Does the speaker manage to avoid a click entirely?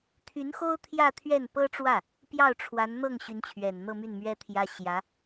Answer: yes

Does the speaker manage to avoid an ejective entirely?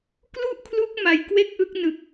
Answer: yes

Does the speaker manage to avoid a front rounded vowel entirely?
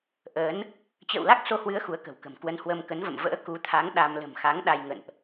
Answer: yes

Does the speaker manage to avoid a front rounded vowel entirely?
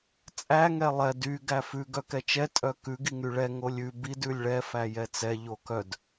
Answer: no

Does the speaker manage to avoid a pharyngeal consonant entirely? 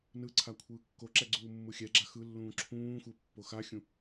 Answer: yes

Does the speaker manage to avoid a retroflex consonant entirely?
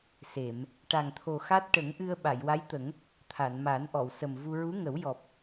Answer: no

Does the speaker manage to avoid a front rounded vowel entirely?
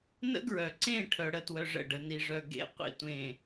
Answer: no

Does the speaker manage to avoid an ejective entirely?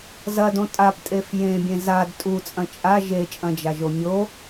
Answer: no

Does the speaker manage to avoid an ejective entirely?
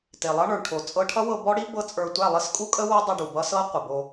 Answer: no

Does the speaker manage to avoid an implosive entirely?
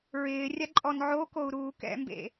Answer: yes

